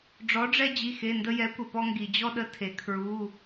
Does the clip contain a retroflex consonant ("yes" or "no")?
yes